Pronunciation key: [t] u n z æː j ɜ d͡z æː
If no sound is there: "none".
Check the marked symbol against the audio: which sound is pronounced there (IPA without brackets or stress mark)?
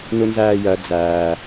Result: n